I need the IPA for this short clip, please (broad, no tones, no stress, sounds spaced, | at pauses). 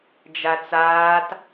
d͡ʒ a t͡s aː t